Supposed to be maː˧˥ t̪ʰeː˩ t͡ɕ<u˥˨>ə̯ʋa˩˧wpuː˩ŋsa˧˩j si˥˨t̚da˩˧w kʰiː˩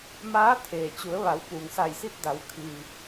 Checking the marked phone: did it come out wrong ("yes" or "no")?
yes